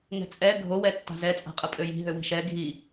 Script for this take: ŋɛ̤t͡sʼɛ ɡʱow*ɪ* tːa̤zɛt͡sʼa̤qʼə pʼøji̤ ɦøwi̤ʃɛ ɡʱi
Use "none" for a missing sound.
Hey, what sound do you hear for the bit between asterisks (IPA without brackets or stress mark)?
ɛ